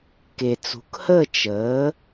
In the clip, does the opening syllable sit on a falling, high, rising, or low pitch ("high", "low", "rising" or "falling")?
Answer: low